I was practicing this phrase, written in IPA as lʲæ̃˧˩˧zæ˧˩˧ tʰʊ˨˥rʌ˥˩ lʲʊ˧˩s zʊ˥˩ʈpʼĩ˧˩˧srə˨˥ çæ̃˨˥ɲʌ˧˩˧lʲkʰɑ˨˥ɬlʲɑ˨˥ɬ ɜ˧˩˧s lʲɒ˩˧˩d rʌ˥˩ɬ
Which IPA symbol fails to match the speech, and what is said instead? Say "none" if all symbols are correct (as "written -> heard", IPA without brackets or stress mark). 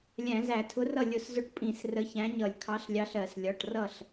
d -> ʈ